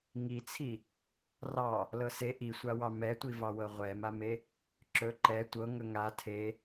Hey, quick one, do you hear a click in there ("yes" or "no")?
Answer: yes